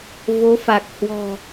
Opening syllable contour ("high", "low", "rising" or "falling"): rising